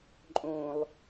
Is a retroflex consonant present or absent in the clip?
absent